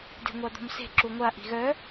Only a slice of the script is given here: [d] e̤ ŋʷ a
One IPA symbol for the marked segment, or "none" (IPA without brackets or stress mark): d